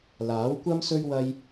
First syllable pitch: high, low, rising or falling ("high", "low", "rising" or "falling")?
rising